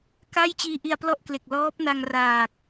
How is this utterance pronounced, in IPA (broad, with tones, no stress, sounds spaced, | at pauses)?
k a˥˩ j t͡ɕ iː˧ ʔ i˧ a̯ p l ɔ˥˩ ʔ k l e˨˩ k̚ l ɔː˦˥ p̚ n a˧ ŋ r aː˨˩ k̚